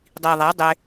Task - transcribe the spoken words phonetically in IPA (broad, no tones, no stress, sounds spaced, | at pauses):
dˤ i ðˤ æ dˤ e